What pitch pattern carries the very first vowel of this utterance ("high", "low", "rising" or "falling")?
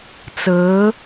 rising